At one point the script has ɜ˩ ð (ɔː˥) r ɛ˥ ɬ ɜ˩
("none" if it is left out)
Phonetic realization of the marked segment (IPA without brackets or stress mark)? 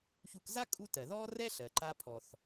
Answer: ɔː˥